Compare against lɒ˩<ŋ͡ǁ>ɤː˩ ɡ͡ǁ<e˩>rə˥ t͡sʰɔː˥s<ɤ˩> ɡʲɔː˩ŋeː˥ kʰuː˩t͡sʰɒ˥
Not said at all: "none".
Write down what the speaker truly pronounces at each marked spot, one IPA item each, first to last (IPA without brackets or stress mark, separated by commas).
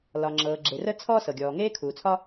ŋ͡ǁ, e˩, ɤ˩